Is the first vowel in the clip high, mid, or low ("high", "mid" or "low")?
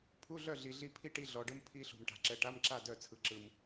high